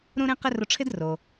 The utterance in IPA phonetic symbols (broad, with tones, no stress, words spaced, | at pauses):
ɾũ˥ɾẽ˥qɪ˥ rʊ˧ʈ͡ʂʰɪ˥dro˩